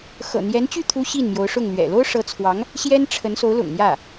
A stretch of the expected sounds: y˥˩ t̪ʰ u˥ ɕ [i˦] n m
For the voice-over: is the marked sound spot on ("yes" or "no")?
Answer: no